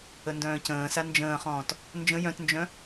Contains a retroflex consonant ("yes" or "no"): no